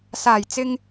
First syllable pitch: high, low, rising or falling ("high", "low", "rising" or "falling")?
low